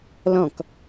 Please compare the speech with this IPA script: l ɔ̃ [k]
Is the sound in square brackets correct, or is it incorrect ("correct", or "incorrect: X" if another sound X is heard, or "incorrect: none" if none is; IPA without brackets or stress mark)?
correct